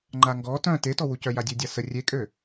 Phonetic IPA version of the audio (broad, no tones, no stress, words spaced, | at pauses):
ŋ͡ǃaŋɡɔ tœ̃ tetɔwucœ jadʲødʲasə rʲekʼø